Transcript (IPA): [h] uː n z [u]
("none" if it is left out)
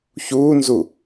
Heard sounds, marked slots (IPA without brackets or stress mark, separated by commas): ç, u